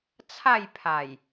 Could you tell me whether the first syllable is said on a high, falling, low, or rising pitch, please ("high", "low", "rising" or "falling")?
falling